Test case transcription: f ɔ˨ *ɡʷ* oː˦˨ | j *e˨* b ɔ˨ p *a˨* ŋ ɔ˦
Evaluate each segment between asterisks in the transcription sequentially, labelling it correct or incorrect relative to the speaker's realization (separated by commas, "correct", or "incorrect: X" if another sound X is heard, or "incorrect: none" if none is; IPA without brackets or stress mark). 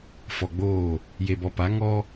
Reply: incorrect: ɡ͡b, correct, incorrect: a˨˦